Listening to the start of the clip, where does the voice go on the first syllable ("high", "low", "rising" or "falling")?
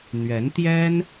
rising